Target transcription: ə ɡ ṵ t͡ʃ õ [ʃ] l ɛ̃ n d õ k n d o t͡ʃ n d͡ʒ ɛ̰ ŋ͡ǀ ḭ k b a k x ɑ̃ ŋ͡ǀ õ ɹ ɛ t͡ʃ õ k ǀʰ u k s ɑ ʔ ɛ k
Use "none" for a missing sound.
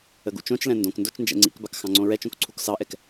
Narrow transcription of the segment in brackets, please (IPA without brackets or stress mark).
t͡ʃ